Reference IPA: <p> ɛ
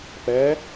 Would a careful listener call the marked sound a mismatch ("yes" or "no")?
no